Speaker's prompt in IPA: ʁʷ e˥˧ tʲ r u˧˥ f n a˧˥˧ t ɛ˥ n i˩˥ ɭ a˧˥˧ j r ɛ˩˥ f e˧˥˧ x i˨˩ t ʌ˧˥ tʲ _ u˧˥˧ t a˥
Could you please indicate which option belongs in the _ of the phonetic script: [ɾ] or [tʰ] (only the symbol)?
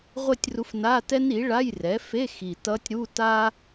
ɾ